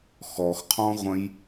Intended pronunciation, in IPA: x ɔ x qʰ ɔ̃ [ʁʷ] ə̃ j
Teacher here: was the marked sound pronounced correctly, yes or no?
yes